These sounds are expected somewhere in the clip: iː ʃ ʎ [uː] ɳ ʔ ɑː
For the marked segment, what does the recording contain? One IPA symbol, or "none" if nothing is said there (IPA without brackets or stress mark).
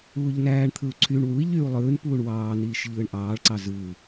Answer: ɯː